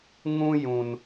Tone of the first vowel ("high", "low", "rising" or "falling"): high